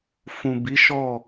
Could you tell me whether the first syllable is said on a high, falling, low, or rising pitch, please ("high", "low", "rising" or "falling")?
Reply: low